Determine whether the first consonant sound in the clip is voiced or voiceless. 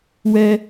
voiced